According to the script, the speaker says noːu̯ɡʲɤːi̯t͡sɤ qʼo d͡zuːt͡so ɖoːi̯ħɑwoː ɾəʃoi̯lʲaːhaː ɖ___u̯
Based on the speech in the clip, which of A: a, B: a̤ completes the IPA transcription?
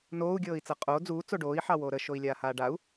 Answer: A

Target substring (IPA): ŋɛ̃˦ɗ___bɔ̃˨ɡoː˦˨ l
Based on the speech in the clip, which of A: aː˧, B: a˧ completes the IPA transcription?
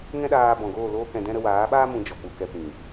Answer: A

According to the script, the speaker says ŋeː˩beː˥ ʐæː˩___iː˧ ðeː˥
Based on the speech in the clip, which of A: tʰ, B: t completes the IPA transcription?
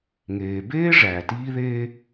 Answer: B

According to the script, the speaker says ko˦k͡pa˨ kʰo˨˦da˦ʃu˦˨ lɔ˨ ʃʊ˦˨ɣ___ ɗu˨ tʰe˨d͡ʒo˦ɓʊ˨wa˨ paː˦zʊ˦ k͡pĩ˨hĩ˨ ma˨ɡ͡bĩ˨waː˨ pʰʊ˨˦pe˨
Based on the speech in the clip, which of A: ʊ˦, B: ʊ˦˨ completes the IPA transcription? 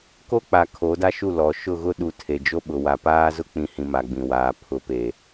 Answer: A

